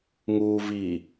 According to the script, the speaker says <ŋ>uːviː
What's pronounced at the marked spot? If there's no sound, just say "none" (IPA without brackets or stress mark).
ŋ